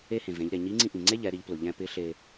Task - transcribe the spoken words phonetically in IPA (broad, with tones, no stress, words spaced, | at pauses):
e˥hẽ˩vẽ˩˧ʎɾe˩ ɲi˧˥ŋ͡ǀĩ˧ʔĩ˩ŋ͡ǀe˥ ʎɛ˩˧ɾi˩˧ʎplʊ˩ ʎɛ̃˧pɪ˧˥ ɬe˧